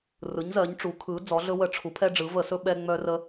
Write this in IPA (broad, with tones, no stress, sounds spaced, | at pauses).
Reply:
r ɯ˩˧ ɲ z ɜ˩˧ ɲ ʈ͡ʂ u˩˧ kʰ ɯ˩˧ d͡z ɔ˩˧ ɮ ɵ˧ w ə˧˩˧ ʈ͡ʂʰ u˩˧ pʰ ɛ˧ ɖ͡ʐ ɯ˩˧ v ə˧˩˧ s ɵ˧ ɓ ɛ˧ ŋ͡m œ˧ r ə˧